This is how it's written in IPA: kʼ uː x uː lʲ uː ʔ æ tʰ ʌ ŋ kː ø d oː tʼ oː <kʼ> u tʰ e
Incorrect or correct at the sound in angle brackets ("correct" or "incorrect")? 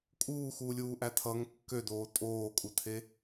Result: correct